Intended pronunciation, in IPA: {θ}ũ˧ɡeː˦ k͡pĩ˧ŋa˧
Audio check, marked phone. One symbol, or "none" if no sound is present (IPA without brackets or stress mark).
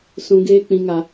s